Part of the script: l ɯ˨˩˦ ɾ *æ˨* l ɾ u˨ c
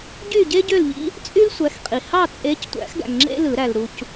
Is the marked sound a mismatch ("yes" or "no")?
no